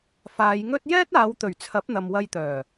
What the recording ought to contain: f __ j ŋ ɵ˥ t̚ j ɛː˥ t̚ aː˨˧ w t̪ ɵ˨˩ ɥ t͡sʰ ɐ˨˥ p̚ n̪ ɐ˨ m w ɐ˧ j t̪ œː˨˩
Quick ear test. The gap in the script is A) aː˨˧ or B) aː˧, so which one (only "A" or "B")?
A